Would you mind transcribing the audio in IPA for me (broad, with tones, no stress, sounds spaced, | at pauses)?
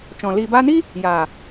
t͡ʃ ɔ̃˨ l iː˨ b aː˧ n i˦ | j a˨